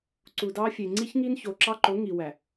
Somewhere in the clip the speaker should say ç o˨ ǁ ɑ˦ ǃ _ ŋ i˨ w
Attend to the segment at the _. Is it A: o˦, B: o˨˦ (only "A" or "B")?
B